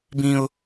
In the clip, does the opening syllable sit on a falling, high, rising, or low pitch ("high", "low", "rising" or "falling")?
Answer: high